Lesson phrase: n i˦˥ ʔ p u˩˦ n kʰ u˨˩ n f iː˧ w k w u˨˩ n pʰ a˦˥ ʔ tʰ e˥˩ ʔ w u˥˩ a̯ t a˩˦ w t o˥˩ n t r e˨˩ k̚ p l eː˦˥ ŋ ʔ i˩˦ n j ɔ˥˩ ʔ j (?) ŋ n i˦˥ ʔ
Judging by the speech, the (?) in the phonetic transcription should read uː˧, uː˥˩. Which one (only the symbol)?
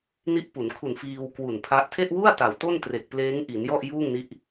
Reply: uː˥˩